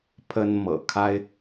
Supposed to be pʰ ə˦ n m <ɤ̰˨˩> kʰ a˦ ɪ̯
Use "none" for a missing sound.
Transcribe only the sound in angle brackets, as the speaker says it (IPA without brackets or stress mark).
ɤ̰˨˩